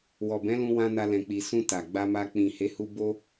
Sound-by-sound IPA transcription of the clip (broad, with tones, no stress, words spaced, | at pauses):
wɔ˨bɛ̃˨˦lũ˧wã˧ na˧lɛ̃˨k͡pi˨ sũ˧ ta˨ɡ͡ba˧ma˧ k͡pĩ˨he˨˦hu˧ bo˦